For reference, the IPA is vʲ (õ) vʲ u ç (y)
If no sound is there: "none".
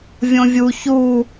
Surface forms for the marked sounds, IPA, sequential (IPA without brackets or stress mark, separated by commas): õ, u